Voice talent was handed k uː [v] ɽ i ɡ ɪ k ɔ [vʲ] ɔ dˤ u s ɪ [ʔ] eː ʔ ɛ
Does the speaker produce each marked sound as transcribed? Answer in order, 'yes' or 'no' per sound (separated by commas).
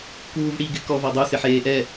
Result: yes, no, no